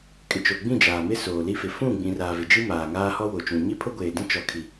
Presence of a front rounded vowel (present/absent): absent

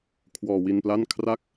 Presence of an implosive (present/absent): absent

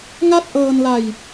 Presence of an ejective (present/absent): absent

